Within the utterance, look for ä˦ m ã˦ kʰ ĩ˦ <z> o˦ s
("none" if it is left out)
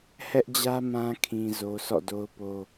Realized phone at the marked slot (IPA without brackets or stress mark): z